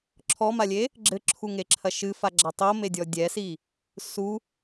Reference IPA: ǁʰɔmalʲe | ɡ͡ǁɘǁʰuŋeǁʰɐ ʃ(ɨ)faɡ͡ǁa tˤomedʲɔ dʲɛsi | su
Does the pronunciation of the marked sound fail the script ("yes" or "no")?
no